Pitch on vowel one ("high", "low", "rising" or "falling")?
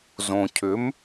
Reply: low